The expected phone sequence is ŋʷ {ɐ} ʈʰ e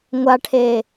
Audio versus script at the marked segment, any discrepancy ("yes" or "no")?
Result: yes